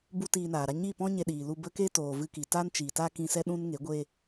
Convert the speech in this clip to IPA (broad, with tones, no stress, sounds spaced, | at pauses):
b u˦ t iː˧ n aː˨ ɾ a˧ ɲ i˦˨ p ɔ̃˦ ɲ e˧ ɗ iː˨ l u˧ b ə˦ k e˦ t oː˨ v ɨ˧ k i˨ t a˦ n t͡ʃ iː˨ t a˦ k ĩ˧ s ɛ˦ ɗ ũ˦ n ŋ e˨˦ ɡʷ e˧